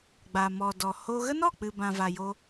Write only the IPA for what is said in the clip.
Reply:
ɡ͡baː˨mɔ˨dɔ˨ho˦ ɣə˦nɔ˦˨k͡pɨ˨ bã˨va˨jo˧

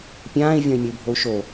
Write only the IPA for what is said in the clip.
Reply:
pʲãːi̯ vʲɔ̃i̯mʲəu̯bʱou̯ʃo

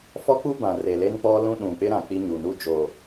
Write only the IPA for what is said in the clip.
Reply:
fɔ˦k͡pu˦bã˨ re˨le˦nk͡pɔ˦ lũ˦ɗũ˨ k͡pɪ˦ɾã˨ k͡pi˦ɲu˨ nu˦d͡ʒo˨

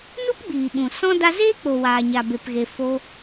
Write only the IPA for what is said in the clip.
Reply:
nu˦pɡ͡biː˨ɓũ˨ sɔ̃˦ da˧zeː˦k͡po˨ waː˨ɲa˨be˨pɣe˨ fo˧

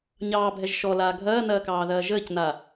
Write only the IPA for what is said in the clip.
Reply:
ɲɑːbʱɛʒ ʃɔlaː ɡʱɐːnɐːkɑːðɐː ʒəːcna

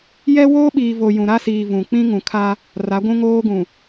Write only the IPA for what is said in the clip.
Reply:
jɛ˦woː˦ɓiː˨ vo˨ jũ˨ɾa˦siː˨ vũ˨ k͡pĩ˦ŋũ˨ kʰa˦ | ra˨˦ɡʷũ˦ŋoː˦ɡũ˨

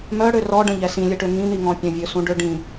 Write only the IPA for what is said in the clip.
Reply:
mœɽø rɔɖə̃ʎɛ sĩlʲəʈø ŋĩn̪iŋɔ̃ pʲə̃vʲøsũɖø ɖĩ

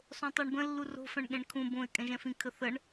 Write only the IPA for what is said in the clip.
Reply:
sˤõtˤɜɳbə̃ lːuro̤fɛ̃ɳ ɠẽɳkʰũ bõɪ̯ kʼɛ̃ʒɛ̃fĩ kʰəθəɳ

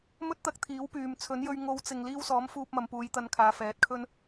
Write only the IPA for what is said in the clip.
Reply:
mɵ˥t̚t̪ɐ˧k̚t̪ʰiː˨˥wpyː˨m t͡sʰɵ˨˥njɵ˧ɥ ŋo˨˧wt͡sɪ˨ŋ liː˧wsɔː˨˥m fuː˧p̚mɐ˨˧m puː˨˧jt̪ɐ˧nkʰaː˨˧ fɛː˨˥t̚kʰɵ˥n

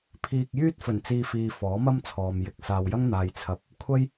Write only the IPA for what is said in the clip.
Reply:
pʰiː˧k̚ jyː˥t̚fɵ˨˩nt͡siː˧fiː˨ fɔː˨˥mɐ˥mt͡sʰɔː˨m jɪ˨˥k̚saː˨wjɐ˥ŋ n̪aː˨jt͡sʰɐ˨˥p̚ | kʷʰɐ˥j

